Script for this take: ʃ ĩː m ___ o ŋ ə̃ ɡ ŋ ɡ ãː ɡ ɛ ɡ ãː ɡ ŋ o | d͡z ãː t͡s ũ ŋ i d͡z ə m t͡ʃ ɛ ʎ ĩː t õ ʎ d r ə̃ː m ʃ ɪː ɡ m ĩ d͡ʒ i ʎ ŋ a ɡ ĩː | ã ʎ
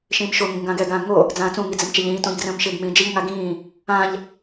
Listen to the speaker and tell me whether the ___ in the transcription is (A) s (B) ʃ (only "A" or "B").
B